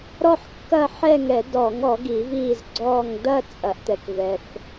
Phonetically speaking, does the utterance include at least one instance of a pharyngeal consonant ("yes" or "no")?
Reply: yes